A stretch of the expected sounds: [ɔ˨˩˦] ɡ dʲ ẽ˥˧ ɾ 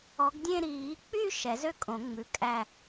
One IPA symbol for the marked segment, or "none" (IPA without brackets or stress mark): ɔ˨˦